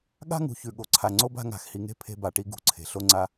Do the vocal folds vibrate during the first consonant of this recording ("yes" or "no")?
yes